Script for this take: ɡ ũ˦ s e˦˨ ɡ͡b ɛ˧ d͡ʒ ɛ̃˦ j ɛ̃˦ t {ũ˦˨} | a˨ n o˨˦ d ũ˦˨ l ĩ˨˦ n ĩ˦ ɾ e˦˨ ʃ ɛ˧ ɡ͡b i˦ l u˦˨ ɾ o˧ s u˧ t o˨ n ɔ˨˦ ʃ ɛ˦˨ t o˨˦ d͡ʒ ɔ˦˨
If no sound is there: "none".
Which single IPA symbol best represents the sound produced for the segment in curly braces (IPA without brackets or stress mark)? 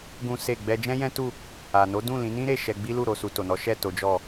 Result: u˦˨